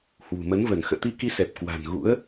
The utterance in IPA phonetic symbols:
h w ṳ˨˩ m ə˨˦ n v ə˧˩ n x ə̰ː˧˨ t̪ i˧ k i˧ s ɛ˨˩ p̚ k w a̤˨˩ n ɣ ṵ˧˥ ə̯

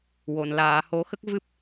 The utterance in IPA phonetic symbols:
w o˨˩˨ n l aː˨˩˨ h o˨˩˦ x ə˦˥ k̚ v ɨ˦˥ p̚

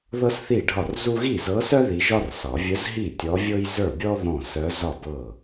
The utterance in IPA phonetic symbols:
ð ɤ˥ s θ i˥˩ ɖʱ ɒ˥˩ r z u˥ ɣ i˥˩ z ɤ˧˥ s œ˥ ð i˧˥ ʒ ɒ˥ r s ɒ˨˩˦ vʲ ə˧˥ z ɦ i˥˩ tʲ ɔ˧˥ vʲ ɤ˥ j z ə˞˥˩ bʲ ɔ˥ ð ɔ̃˥˩ s œ˧˥ z ɒ˥˩ b ɤ˥˩

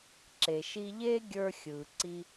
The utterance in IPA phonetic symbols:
ǁ e˩ ʃ i˧ ʎ eː˥ ɡʲ ə˞˧ xʲ ɯː˩ ǀ i˧

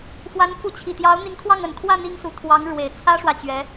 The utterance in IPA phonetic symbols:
f w a˧˥ n f u˧˥ t͡ɕʰ i˨˩ t̪ j ɑ˧˥ ʊ̯ n̪ i˧˥ ŋ kʰ w ɑ˥˩ ŋ ə˨˩ n kʰ w ä˥˩ n̪ i˥ ŋ s u˧˥ t̪ʰ w ɑ˧˥ ŋ ɻ w e˨˩ ɪ̯ t͡sʰ ä˥ ʂ w ä˨ t͡ɕ ɥ ɛ˧˥

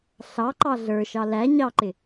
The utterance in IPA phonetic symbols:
ɬ ɑ ǃ ɑ ɮ ə˞ ʃ ɑ l æ ɲ ɑ ǃ ɪ

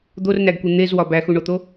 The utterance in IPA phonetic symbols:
d̪ o r n æ ɡ kʷ e n̪ e z w ɒ b æ x u ɳ o t̪ o

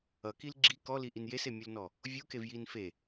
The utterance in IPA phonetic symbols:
ʌ k i l ɡ͡ǁ i k ɔ l i ʔ i n j e s e mʲ u l n ɔ | vʲ u k e v j i n f e

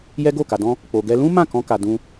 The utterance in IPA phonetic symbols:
j ɛ˦ ɡ o˦˨ k a˧ d ɔ̃˦ | k͡p o˧ ɡ ɛ˦ l ũ˦ m ã˦˨ k ɔ̃˧ k a˧ d ũ˦

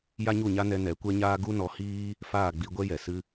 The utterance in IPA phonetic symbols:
j a˦ ɲ u˦˨ ɲ a˦ n ɛ˧ n ɛ˨˦ kʷ ɛ˦ ɲ aː˦ ɡ u˦ n ɔ˨˦ h iː˦ | f aː˦˨ ɡ͡b i˧ ɡʷ ɛ˦ j ɛ˨ s ɨ˦

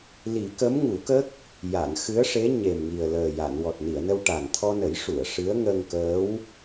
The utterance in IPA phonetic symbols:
l i˨˩˦ k ə˧˥ m ŋ u˨˩˦ k ə˦˥ k̚ | j a˨˩˨ n x ɨ˧˥ ə̯ ʂ e˧˥ ɲ e˨˩ m ŋ i˨˩ ə̯ l əː˨˩ j a˨˩˨ n w ɔ˨˩ t̚ n i˨˩˨ ə̯ n ə˧ w ʈ a˨˩ n t̪ʰ ɔ˧ n ə˨˩˦ j ʂ u˨˩˨ ə̯ ʂ ɨ˧˥ ə̯ ŋ ə˧ ŋ k əː˧˥ w

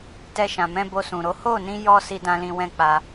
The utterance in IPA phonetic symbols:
t ɛ˧ ʃ ã˨ m ɛ̃˧ b o˧ s ũ˨ ɾ o˨˦ h o˦˨ n ĩ˧ j ɔ˦ s i˦ d ã˦ l ĩ˧ w ɛ̃˦ k͡p a˧

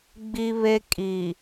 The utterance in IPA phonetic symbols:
ɡ͡b i˦ β e˦ kʼ i˨

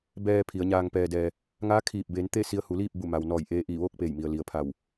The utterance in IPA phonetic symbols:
b ɛː˧ pʰ i˩˧ ə̯ ɲ aː˧ ŋ p ɛː˧ d ɛː˧ | ŋ aː˧˥ kʰ iː˧˩ p̚ b eː˩˧ n t̪ e˥˨ s i˧ ə̯ h u˩˧ l iː˥˨ p̚ b u˧˩ m a˩ w n ɔː˧˩ j ʔ eː˧ ʔ iː˧˩ ʋ oː˥˨ k̚ p eː˧˩ j m i˩ ə̯ l i˩ ə̯ pʰ a˧˩ w

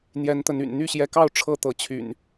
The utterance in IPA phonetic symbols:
n̪ j ɛ˨˦ n t̪ ə˨˦ n y̰˨˩ n n̪ y˥˨ ɕ j ɛ˨˦ k ɑ˥˨ ʊ̯ ʈ͡ʂʰ ɤ˥˨ t̪ ɤ˨˦ t͡ɕʰ y̰˨˩ n

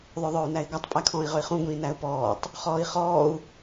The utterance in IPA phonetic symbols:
ðˤ œ ðˤ œː u̯ n æ i̯ ɡʷ ɑ tˤ pʼ æ kʰ ɔ̃ː i̯ ʁ ɵ i̯ χ ũ ɡʷ ĩː n æ u̯ p ɔː tˤ | χ ɔː i̯ χ ɔː u̯

